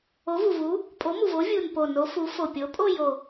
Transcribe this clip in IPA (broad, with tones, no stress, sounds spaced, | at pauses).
o˨˦ v u˨˩ v u˨˦ | pʼ o˨˦ m u˨˩ v o˨˦ vʲ u˨˩ n p o˨˩ n o˨˦ f u˨˦ f o˨˩ pʲ o˨˦ pʼ o˥˧ j o˨˩